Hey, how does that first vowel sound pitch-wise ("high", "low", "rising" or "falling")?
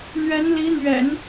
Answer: rising